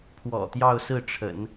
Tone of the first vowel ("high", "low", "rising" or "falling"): low